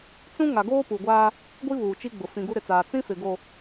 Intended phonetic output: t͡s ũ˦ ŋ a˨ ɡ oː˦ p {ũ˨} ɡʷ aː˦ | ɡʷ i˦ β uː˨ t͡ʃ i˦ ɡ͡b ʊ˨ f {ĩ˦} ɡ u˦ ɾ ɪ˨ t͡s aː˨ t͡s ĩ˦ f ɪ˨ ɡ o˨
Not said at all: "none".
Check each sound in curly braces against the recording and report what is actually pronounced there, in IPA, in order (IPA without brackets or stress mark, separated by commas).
u˨, ĩ˨